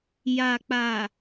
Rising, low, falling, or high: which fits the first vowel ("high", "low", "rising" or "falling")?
low